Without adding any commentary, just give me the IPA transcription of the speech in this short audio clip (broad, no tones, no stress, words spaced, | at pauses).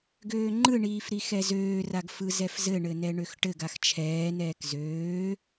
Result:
ɡøːŋ͡ǃɯɳiːf ɾixɛzøːraɡ fɯzɛfzɘɳɘ nɛɳøxʈɘɡax t͡ʃʰɛːnɛːk zøː